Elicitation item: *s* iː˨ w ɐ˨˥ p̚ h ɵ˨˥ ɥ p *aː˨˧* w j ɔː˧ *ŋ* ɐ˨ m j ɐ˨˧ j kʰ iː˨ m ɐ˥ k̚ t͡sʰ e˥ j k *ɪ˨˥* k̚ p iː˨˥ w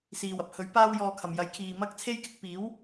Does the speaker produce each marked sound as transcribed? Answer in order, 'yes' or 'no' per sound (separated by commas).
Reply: yes, no, no, no